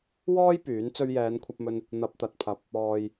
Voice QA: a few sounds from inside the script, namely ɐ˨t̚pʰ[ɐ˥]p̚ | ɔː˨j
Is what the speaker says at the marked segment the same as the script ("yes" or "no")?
no